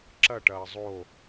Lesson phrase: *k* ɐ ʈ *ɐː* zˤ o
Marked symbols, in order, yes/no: no, yes

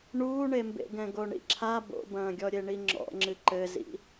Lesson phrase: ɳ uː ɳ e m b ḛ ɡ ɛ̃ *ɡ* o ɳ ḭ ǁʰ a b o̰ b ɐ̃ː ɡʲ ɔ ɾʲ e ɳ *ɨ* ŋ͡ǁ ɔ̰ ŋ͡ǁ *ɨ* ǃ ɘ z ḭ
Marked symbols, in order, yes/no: yes, no, yes

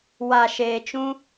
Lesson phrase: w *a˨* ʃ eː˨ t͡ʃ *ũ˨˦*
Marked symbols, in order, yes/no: yes, no

